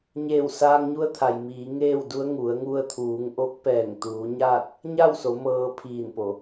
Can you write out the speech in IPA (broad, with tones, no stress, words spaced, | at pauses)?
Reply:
ɲeː˧˩wsaː˧ŋɲu˧˥ə̯t̪ʰa˩j miː˩˧ŋeː˥˨wdu˧˥ə̯ ŋu˩˧ə̯ŋu˧ə̯t̪ʰuː˩˧ŋ ʔo˧˥k̚pɛː˧˩ŋt̪uː˩˧ ɲaː˥˨t̚ | ɲa˥˨wso˩˧ mɤː˧pʰiː˧˩n po˩˧